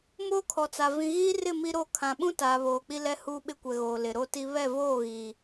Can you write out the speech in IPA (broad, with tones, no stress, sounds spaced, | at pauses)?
m oː˦ kʰ ɔ˨ t͡s a˨ v ĩ˨ ɣ iː˦ r ɪ˦˨ m i˦ ɾ o˦ kʰ ã˨ ɓ ũ˦ t aː˨ β oː˨ k͡p i˦ l ɛ˦ h uː˦ ɓ ɪ˦ kʷ ɛ˨ ɣ oː˨ l ɪ˨ ɾ o˦ t i˦ β ɛ˦˨ v oː˦˨ ɣ iː˨